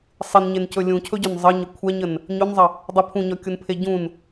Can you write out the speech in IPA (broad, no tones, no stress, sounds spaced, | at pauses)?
sˤ ɪ n ɲ e n c ɵ lʲ ũ cʰ ɵ ɟ ɵ n zˤ ə ɲ ə kʷʰ ɛ ɲ ə n | ɲ ɵ n zˤ ə | dˤ ɪ pʰ ũ ɲ ɒ kʲ u n pʰ e ɟ ũ n